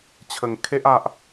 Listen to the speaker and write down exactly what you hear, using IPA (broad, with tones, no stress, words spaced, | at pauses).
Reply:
t͡ɕʰə˧ŋkʰe˦ʔa˦ʔ